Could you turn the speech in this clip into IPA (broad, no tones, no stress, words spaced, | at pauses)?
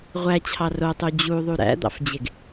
ʁʷæt͡ɕʰɑ rotˤu d͡ʑuðˤu ɾæ̰d̪ɑ̰fd͡ʑeɡ